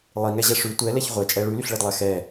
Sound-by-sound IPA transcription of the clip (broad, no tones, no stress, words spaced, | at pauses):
lˠiŋɛʑɛ ʂʉ tʷɛlɛç ʁʷɛt͡ʃʼɛ ɭʉlyɬɭedlˠɛ xɛ